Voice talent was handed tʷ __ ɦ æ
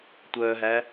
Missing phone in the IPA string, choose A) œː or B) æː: A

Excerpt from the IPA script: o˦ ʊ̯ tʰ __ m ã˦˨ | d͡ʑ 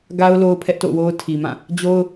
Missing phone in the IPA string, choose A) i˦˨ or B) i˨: B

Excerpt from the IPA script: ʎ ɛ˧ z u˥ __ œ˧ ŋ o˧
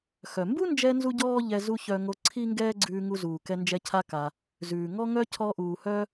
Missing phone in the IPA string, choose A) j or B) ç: B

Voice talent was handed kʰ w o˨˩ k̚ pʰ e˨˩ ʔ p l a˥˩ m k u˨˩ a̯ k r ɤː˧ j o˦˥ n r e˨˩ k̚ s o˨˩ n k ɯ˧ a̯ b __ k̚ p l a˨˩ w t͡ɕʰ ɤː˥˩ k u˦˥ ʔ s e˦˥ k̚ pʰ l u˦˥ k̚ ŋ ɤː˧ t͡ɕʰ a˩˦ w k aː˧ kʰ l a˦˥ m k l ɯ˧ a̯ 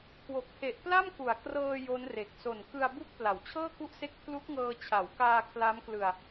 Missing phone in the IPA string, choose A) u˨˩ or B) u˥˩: B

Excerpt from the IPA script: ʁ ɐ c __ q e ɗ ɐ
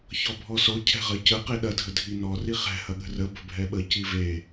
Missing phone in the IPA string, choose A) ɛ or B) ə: B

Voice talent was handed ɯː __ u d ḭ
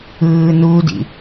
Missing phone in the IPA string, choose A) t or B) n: B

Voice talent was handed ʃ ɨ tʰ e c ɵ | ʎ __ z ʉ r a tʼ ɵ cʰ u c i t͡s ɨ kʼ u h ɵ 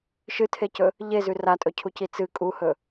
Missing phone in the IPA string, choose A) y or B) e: B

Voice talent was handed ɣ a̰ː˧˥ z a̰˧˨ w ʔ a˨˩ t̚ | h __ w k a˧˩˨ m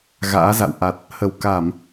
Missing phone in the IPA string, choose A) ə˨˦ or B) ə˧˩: B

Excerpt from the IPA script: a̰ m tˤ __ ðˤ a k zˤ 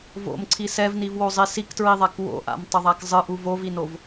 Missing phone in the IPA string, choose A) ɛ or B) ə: B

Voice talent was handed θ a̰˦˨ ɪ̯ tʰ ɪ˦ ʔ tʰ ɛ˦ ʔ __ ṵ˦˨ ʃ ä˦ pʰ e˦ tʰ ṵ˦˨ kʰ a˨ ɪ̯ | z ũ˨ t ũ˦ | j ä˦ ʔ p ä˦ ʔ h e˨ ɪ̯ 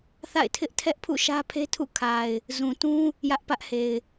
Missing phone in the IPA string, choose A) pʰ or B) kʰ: A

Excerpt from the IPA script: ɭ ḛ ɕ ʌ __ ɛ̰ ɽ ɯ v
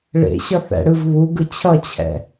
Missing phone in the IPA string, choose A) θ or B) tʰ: A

